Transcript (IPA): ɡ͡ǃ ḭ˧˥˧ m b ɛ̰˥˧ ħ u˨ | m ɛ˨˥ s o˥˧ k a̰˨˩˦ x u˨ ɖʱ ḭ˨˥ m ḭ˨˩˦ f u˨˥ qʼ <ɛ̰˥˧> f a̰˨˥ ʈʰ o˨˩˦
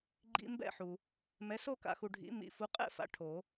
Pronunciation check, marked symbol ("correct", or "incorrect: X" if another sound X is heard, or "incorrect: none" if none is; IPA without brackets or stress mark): correct